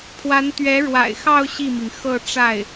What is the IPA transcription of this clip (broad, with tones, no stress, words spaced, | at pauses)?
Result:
pʰwa˧˥nt̪ɥɛ˧˥ ɻwa̰˨˩ɪ̯xɑ˥˧ʊ̯ ɕi˥˩mi˩ŋ xɤ˥˧ʈ͡ʂa˥˩ɪ̯